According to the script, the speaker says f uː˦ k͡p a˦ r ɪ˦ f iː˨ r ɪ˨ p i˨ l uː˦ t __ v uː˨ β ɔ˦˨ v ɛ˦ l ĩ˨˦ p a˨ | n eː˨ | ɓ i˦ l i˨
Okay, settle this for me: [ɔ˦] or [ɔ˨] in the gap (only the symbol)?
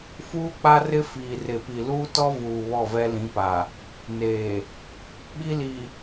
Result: ɔ˦